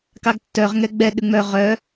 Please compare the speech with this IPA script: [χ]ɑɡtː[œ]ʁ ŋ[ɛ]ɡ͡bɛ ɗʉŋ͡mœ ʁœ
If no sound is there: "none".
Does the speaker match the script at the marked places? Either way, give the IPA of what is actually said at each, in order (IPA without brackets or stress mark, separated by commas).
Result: k, œ, ɛ